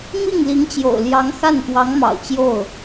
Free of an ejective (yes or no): yes